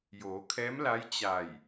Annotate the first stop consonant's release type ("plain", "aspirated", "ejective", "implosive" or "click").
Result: aspirated